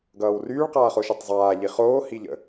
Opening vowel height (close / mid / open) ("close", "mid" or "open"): mid